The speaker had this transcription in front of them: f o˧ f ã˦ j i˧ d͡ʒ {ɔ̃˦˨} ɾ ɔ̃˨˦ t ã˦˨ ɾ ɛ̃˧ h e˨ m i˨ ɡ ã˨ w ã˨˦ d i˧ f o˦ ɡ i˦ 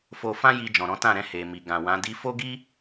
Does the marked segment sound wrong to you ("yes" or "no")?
yes